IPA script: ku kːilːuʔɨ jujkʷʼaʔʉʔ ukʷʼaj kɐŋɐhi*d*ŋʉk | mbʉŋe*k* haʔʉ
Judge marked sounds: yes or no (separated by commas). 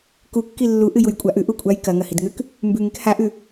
yes, yes